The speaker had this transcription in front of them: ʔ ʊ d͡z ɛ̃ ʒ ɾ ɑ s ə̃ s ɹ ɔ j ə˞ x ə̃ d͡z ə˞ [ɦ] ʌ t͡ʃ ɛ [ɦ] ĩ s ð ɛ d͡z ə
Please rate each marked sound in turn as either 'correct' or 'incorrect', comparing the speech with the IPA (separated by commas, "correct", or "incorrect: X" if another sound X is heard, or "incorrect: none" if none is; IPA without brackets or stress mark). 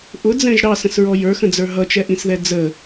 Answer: correct, incorrect: ʔ